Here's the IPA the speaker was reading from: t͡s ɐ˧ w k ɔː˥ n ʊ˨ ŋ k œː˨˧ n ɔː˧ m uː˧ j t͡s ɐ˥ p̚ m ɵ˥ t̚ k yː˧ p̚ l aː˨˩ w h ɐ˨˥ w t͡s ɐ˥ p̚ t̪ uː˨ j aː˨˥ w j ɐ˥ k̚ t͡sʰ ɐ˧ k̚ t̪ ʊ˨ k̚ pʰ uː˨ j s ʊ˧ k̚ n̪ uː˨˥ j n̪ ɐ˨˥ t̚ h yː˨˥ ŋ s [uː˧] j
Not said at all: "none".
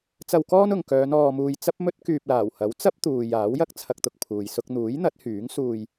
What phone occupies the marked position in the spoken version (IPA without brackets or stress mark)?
uː˧